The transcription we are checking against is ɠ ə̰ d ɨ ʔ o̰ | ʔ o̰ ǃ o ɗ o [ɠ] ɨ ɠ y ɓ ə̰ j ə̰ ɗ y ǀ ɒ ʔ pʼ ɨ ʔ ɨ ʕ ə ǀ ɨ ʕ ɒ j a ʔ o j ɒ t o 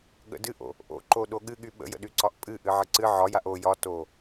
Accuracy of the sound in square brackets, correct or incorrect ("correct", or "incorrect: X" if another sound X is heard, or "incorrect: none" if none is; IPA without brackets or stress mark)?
correct